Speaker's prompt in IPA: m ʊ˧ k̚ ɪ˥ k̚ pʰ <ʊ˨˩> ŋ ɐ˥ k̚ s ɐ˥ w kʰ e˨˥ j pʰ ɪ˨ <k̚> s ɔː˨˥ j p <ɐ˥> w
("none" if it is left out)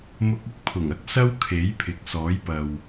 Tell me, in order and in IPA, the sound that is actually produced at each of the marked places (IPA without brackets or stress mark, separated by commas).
ʊ˨˩, k̚, ɐ˨